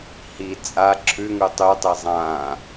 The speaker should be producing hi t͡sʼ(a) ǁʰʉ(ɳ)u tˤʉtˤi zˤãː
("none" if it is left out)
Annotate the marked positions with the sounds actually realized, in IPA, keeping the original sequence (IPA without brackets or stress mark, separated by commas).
a, ŋ